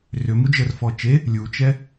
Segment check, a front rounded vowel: present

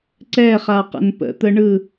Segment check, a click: present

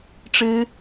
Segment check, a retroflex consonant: present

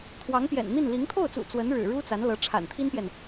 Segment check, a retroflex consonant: present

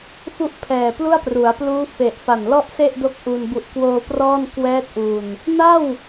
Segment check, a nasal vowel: absent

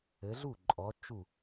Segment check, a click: present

